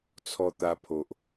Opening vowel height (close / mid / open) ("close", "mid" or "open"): mid